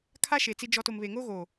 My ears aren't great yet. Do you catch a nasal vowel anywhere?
no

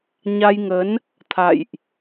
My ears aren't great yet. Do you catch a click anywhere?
no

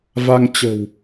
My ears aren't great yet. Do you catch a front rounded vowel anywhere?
no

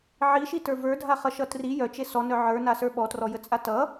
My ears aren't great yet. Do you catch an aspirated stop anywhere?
no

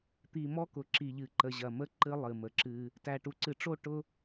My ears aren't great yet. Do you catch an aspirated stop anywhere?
no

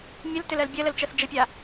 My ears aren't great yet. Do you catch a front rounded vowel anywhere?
yes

